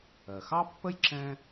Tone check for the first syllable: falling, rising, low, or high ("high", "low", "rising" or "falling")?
low